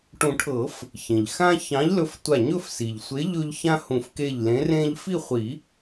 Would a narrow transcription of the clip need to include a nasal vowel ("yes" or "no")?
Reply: yes